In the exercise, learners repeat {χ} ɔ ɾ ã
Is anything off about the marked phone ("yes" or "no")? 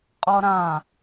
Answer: yes